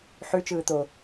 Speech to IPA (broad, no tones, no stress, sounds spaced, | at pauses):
ħ ʉ t͡ʃ ɯː t̪ o